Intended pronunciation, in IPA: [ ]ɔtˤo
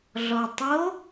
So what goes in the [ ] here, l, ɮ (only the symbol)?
ɮ